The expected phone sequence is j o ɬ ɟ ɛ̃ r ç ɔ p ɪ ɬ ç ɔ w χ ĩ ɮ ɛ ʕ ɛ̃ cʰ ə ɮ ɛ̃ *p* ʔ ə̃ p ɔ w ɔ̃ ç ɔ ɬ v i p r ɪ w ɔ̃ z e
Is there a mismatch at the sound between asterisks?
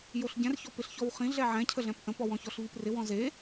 no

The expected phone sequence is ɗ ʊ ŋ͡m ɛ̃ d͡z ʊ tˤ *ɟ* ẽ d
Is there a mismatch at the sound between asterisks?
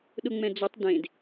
yes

